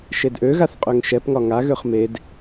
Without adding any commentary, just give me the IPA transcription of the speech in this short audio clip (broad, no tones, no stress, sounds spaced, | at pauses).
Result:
ʃ e d ʔ ø ɣ a θ qʼ ø ŋ ʃ ɛ p ŋ ɒ ŋ a ɣ ø χ m e d